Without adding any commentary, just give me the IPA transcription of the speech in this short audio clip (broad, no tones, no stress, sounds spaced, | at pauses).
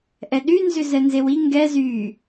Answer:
ʔ ɛ ɗ y n z ʏ z ɛ n z e w i ŋ ɡ ɛ z y